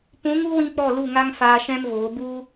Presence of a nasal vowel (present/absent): present